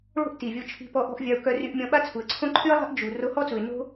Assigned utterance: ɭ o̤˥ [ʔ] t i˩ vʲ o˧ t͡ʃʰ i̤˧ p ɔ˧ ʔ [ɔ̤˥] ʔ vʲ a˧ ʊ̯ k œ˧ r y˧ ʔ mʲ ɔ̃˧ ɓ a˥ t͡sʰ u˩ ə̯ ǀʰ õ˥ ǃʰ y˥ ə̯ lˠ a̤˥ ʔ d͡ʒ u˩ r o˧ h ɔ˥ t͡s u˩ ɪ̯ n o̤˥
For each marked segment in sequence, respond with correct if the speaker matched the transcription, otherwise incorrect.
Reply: correct, correct

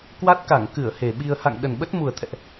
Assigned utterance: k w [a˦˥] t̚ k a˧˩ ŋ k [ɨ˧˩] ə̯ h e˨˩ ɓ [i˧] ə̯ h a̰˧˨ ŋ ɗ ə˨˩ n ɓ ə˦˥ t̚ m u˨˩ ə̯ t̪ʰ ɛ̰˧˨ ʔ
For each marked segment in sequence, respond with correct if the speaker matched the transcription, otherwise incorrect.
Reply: correct, correct, correct

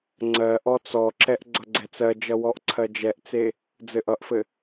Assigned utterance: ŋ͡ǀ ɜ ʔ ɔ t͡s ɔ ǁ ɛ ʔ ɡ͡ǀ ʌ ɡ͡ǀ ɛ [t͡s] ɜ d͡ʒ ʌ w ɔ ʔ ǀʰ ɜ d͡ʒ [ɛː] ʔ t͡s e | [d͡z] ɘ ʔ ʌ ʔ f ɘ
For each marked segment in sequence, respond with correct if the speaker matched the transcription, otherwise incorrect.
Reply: correct, incorrect: ɛ, correct

